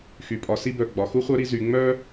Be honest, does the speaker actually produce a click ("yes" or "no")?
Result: no